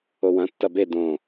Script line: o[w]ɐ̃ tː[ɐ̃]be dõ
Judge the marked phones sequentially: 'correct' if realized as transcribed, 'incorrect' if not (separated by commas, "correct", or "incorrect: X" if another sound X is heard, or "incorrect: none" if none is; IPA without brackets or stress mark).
correct, incorrect: ɐ